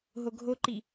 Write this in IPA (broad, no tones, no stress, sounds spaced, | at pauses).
ɦ o ɡʱ o ǃ i